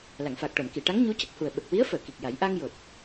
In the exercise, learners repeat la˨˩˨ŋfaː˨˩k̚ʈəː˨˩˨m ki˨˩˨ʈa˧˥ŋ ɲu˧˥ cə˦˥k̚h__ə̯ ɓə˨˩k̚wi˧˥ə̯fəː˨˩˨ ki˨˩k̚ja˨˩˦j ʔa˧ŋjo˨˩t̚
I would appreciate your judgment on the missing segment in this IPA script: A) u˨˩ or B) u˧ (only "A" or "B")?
A